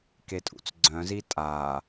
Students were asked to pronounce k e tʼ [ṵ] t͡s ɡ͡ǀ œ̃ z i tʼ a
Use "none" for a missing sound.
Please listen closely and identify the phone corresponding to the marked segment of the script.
ṵ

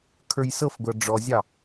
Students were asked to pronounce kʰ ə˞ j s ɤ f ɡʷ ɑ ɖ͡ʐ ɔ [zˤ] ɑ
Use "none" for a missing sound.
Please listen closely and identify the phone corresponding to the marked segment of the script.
zʲ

